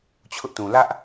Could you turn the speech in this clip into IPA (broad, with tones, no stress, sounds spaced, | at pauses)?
t͡ɕʰ ʊ˦ ʔ t ũ˨ l ä˦ ʔ